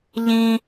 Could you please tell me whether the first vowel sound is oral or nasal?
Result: nasal